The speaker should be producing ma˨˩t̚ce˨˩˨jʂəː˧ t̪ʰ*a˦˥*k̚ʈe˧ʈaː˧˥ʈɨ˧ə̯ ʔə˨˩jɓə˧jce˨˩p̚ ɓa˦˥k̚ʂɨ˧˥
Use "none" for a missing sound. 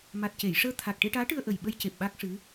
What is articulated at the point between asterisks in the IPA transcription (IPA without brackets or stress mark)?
a˨˩